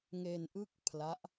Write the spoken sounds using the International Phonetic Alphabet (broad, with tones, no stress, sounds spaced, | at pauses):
ŋ e˧ n ʔ ɯ˥˩ k̚ pʰ l a˦˥ ʔ